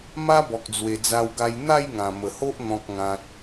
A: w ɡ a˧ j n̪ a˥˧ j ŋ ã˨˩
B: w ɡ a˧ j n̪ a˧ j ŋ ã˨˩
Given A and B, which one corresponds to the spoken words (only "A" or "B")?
A